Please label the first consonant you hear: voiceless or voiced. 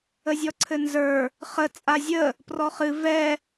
voiced